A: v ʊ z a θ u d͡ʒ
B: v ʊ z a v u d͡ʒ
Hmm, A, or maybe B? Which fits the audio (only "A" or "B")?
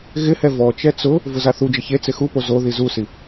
A